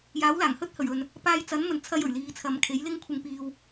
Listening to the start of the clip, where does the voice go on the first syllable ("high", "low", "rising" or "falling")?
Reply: rising